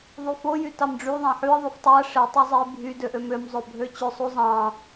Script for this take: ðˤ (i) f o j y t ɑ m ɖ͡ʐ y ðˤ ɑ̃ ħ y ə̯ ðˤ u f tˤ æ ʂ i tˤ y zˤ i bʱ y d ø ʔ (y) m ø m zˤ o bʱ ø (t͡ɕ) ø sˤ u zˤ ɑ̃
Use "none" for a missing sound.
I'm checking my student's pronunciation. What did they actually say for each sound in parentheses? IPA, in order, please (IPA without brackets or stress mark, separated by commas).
y, ø, t͡ɕ